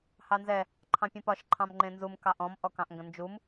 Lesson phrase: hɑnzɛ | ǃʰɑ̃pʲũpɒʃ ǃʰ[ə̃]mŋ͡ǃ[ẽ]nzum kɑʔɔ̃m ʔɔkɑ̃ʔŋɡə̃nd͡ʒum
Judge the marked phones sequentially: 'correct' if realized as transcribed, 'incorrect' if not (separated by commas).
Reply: incorrect, correct